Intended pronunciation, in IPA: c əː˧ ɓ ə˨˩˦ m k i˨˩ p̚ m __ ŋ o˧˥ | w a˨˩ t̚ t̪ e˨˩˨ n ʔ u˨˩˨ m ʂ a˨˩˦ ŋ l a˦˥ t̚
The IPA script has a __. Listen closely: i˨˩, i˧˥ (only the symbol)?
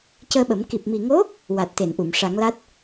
i˨˩